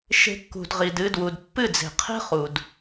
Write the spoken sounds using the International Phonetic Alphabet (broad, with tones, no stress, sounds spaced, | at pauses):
ʃ e̤˧ kː ṳ˨ d ʁ i˨ d ɨ˧ d w u˨ d pː ɨ˦˨ d͡z e̤˨ qʰ e̤˦ χ u˨ d